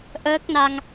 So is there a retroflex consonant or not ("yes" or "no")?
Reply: no